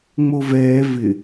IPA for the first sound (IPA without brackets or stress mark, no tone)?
ŋ͡m